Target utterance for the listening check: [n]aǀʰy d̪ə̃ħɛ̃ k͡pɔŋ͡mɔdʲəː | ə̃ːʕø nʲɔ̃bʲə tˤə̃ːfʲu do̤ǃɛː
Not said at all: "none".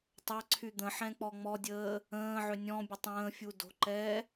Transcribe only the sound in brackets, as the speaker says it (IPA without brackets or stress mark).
tˤ